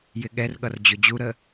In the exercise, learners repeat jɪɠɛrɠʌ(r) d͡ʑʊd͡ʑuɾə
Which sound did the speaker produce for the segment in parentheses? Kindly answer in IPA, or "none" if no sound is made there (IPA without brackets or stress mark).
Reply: r